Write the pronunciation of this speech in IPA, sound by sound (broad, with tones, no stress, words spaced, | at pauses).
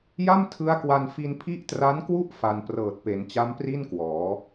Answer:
ja˥˩mtʰɯ˦˥a̯kwa˧n fi˧npʰi˦˥ʔtra˦˥nkwu˥˩ʔ fa˧n prɤː˨˩t̚pe˩˦nt͡ɕa˦˥mpri˥˩n kwɔː˩˦